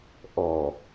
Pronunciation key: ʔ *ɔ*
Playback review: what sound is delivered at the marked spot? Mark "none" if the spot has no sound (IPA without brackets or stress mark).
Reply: ɔ